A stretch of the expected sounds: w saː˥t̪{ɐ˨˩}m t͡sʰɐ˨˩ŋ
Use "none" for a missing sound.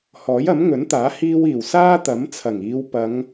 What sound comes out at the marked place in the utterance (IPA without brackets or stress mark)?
ɐ˨˥